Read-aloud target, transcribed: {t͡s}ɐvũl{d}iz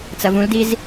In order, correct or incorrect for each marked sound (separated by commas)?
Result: correct, correct